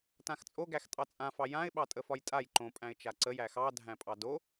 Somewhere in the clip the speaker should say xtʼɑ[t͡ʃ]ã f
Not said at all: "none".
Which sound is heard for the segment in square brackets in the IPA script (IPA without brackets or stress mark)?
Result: t͡sʼ